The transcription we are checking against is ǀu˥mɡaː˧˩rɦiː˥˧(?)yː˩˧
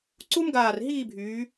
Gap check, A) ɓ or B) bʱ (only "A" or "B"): B